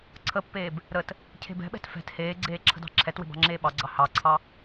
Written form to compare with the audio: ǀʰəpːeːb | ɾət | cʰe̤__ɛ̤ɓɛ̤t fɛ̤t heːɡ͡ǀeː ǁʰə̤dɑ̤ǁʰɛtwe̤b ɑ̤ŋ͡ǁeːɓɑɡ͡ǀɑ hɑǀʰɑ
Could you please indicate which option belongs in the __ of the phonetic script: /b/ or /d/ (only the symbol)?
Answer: b